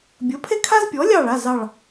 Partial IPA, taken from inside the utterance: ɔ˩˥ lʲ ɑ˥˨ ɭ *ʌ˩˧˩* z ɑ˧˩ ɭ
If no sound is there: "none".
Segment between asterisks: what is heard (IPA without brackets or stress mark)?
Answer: a˩˧˩